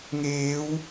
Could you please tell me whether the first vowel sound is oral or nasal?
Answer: oral